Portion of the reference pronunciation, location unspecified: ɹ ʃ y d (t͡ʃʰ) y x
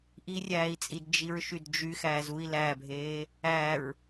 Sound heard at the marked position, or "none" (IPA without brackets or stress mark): d͡ʒ